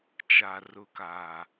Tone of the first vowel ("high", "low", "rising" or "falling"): low